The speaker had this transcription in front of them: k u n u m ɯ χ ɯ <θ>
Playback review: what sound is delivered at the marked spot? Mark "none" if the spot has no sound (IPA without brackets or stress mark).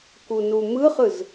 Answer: z